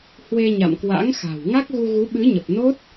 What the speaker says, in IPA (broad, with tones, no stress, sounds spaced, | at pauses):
h w e˧ ɲ a̰˧˨ m k w a̰˧˥ ŋ x a̤˨˩ w ŋ a˦˥ k̚ ɣ u˧ ɣ u˨˦ ɓ ɨ˨˦ ɲ ə˨˩ p̚ n o˦˥ t̚